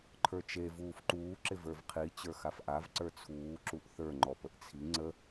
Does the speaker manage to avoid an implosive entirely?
yes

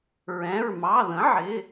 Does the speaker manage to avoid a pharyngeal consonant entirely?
no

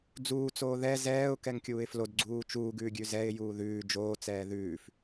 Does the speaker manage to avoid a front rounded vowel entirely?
yes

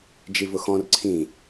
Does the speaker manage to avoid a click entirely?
no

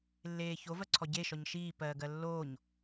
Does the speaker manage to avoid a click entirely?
no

